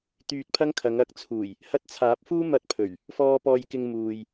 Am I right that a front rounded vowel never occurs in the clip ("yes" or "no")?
no